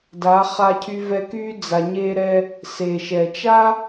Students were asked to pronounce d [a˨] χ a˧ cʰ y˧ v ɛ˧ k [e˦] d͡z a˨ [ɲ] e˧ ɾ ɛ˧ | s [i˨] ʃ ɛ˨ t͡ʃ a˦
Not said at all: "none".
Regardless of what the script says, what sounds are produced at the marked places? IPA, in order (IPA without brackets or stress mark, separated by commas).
a˨˦, y˦, ɲ, e˨